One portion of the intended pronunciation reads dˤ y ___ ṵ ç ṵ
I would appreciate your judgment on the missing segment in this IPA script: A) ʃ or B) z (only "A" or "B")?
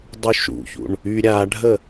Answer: A